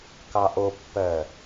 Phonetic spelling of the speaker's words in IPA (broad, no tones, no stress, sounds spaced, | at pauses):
k ɑ ʔ o pː ɜ